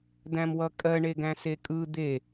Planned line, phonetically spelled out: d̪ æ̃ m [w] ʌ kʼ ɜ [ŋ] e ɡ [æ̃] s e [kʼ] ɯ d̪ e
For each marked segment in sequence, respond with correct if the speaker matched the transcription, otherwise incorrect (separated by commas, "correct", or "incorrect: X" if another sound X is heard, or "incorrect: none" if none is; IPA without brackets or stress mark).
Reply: correct, incorrect: ɳ, correct, correct